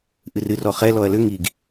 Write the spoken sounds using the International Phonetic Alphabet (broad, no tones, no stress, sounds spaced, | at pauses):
ʔ ɨ r ɨ r ɔ χ ɛ l ɔ ɐ̯ l ʏ ŋ i ɡ